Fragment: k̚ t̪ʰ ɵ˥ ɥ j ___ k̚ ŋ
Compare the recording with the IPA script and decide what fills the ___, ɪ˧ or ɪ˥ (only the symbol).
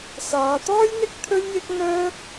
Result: ɪ˥